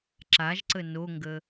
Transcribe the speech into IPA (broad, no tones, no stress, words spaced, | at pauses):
ǁaʒǀə noŋɡə